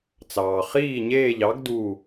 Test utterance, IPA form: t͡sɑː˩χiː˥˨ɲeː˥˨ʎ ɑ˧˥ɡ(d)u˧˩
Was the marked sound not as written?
no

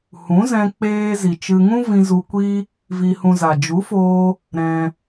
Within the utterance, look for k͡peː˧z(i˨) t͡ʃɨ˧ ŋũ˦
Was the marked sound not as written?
no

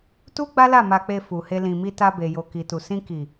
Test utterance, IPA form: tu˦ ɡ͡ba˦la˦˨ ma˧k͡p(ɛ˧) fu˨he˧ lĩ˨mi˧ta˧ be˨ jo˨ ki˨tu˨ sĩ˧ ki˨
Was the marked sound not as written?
yes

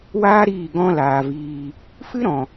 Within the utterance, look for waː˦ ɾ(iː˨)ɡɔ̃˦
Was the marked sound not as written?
yes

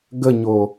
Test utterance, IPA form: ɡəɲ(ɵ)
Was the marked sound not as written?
yes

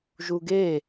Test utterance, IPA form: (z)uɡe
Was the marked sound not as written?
yes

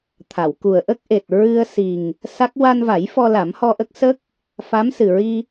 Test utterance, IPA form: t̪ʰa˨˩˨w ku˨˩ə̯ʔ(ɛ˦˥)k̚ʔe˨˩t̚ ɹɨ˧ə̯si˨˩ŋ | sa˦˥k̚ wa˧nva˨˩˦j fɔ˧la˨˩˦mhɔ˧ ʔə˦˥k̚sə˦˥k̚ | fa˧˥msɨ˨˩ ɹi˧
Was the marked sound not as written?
yes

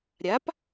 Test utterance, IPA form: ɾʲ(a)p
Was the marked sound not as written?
no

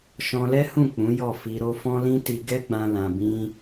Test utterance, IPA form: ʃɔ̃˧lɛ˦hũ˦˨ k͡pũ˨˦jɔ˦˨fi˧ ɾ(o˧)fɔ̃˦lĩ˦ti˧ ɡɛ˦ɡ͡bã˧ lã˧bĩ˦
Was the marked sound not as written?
no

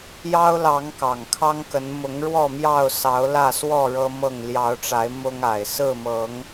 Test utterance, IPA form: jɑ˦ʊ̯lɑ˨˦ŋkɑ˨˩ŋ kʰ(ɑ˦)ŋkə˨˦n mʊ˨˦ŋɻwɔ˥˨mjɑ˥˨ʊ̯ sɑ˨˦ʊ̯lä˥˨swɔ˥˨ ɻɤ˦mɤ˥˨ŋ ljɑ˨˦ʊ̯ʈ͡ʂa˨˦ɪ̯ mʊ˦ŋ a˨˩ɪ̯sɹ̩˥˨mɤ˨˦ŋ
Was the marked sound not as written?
no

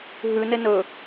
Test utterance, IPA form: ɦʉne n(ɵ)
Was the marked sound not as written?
no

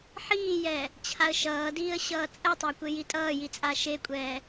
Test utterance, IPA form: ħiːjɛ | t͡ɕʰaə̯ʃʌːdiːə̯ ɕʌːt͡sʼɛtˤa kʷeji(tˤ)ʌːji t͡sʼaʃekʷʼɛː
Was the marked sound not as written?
yes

